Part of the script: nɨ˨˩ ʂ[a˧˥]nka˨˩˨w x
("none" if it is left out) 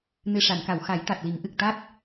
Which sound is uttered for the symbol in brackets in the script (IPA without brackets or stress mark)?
a˨˩˨